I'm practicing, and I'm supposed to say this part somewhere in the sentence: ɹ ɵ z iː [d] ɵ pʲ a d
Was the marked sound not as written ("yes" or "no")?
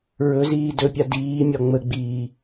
no